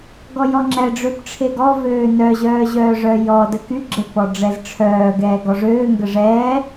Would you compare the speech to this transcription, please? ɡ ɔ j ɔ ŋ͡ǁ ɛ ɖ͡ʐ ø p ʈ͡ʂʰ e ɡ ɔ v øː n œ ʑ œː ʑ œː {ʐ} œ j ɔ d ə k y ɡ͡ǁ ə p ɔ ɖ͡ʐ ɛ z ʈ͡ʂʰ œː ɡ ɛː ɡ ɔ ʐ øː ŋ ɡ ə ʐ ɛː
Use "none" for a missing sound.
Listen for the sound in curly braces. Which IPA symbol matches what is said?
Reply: ʐ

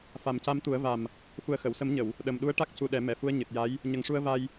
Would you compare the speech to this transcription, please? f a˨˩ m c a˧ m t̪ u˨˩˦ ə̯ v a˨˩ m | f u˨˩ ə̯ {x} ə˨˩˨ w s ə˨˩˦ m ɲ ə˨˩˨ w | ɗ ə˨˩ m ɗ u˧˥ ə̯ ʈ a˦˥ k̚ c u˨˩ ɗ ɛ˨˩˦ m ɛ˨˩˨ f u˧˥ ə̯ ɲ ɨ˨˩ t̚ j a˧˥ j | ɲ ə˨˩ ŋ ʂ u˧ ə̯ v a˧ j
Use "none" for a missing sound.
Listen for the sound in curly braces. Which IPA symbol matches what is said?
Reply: x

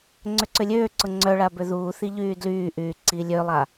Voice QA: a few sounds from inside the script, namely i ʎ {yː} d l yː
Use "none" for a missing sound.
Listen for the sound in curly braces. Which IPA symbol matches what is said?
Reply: yː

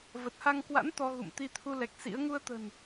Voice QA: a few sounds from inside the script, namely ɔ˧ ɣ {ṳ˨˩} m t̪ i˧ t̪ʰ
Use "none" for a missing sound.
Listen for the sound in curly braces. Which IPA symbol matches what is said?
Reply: ṵ˧˨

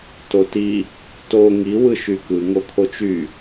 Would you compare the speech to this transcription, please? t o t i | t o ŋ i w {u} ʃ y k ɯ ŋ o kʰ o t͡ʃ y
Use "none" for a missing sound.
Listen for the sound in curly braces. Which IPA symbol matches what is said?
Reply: ɯ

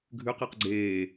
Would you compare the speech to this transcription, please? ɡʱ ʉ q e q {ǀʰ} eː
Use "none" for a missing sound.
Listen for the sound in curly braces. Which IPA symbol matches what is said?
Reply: ɡ͡ǀ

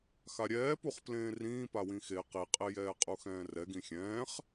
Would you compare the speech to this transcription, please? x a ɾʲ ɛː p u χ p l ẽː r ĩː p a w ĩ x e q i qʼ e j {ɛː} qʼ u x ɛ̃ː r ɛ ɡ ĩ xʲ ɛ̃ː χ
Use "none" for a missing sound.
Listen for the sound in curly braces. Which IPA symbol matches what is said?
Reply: ɛː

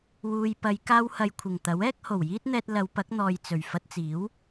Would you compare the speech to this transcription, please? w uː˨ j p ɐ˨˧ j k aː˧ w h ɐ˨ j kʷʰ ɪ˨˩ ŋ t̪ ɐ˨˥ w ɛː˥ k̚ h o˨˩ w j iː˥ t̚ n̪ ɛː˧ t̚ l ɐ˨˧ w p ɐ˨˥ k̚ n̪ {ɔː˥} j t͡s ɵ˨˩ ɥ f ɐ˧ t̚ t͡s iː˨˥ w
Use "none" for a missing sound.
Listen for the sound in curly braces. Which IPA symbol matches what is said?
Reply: ɔː˨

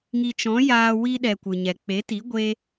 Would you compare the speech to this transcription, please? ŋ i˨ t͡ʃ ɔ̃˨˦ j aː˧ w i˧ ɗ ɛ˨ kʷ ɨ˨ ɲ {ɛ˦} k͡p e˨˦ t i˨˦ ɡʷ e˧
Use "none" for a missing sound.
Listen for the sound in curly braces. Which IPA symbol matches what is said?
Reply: ɛ˨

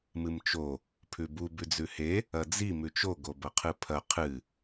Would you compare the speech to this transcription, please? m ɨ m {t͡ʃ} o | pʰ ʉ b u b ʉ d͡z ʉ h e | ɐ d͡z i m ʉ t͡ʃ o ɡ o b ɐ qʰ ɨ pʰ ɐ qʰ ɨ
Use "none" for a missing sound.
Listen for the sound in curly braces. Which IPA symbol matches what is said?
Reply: t͡ʃ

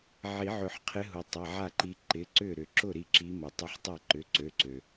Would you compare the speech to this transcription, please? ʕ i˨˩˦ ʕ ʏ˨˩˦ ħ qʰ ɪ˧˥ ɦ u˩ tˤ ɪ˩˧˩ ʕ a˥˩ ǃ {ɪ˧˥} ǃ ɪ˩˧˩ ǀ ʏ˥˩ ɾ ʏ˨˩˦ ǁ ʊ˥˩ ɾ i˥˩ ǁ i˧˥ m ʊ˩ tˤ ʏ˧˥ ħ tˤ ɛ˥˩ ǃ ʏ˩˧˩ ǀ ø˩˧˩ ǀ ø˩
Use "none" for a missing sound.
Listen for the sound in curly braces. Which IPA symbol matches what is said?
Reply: i˧˥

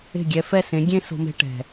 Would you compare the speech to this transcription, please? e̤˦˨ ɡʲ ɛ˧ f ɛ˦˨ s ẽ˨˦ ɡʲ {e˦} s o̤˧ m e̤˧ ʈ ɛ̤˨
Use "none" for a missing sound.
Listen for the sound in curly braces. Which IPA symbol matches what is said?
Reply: ẽ˦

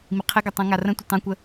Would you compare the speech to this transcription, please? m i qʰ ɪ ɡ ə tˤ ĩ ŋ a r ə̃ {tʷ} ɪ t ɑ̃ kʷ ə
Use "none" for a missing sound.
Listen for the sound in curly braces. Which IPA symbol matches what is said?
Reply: tʷ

